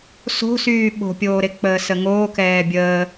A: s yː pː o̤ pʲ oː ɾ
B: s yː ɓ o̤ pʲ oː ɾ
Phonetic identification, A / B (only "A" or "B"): B